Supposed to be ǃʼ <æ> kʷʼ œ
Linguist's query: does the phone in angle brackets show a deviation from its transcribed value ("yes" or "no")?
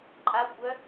yes